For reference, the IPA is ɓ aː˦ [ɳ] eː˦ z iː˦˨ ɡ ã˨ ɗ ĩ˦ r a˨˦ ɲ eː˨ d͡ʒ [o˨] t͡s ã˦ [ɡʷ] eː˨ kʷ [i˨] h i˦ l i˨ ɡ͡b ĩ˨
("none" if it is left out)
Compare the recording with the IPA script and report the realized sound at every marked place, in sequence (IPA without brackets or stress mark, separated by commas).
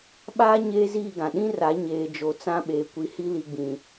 ɲ, o˨, ɓ, i˨